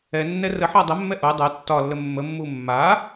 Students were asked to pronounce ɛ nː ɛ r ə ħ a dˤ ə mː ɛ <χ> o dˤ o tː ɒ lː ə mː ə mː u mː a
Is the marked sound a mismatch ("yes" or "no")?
yes